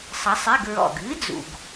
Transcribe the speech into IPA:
sˤʌ˨˥sˤi˧˥˧ɡ ɹɔ̰˨˩ɡɨː˨˥d͡zṵ˨˩ɡ

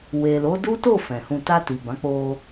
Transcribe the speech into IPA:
we˨lo˨˦ du˦to˦˨ fɛ̃˨hũ˧ ta˧ ti˨bã˨˦ k͡po˧

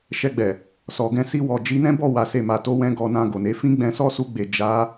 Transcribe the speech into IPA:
ʃɛ˧ɡ͡bɛ˨ | sɔ˨ ɡɛ̃˧si˧wɔ˨ d͡ʒi˨˦nɛ̃˦bɔ˦˨wa˨ se˨ma˨to˨˦wɛ̃˧ ɡɔ˧nã˧ɡo˨ne˨˦ fĩ˦ ɡ͡bɛ̃˧sɔ˦su˧ɡ͡be˨ d͡ʒa˨˦

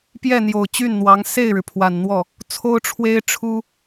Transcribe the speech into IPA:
pjɛ˥˩n̪jo˨˩ʊ̯ t͡ɕy˥˩nn̪wɑ˧˥ŋ se˥˩ɪ̯ɻɻ̩˩ pʰwa˨˩nn̪wɔ˥˩ | t͡sʰo˥ʊ̯ʈ͡ʂʰwe˥ɪ̯ʈ͡ʂʰu˥

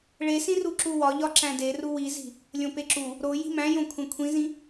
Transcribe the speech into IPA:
ɭesĩru ǁuwɒʎɒ ǁæ̃deru wizi̤ | lʲõpeǁu | ɾo ji̤mæ̃jõ kʷʰẽkʷʰĩzĩ

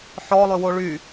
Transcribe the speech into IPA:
ħɔlˠøwo ɭy

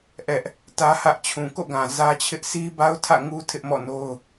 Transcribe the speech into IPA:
ʔɛ˦ʔ | tä˦hä˦ʔ t͡ɕʰũ˨ko̰˦˨ɡã˨ zä˦t͡ɕʰɪ˦ʔ sʰi˦ba˦ʊ̯tʰä̰˦˨ ŋu˦ tʰɪ˦ʔmɔ̰˦˨no˦ʊ̯

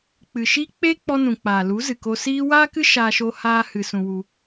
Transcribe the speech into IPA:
k͡pɨ˨ʃiː˦ k͡pe˦ k͡pɔ˧nũ˨ k͡paː˨lu˨˦zɨ˨ko˧ siː˦ waː˦kɨ˦ ʃaː˧ʃo˧haː˧ hɨ˧sũ˧wu˦

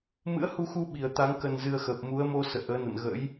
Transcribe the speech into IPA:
mɨ̰˧˥ə̯hu˧xu˧ ɓi˨˩ə̯t̪a˨˦ŋ kə˧nzɨ˧ə̯ xəː˨˩p̚mu˨˦ə̯mo˧ sə̰ː˧˨ʔəː˨˦nə̰˧˨nɣə̰˧˥j

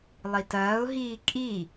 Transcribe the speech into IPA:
lˠitɐːʊ̯ɦiː kʼi

